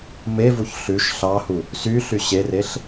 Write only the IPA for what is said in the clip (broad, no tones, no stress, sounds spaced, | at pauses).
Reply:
m e v u ç ɬ ʉ ʃ ɬ ɑ h u | s y ɬ y ɕ e r e ɬ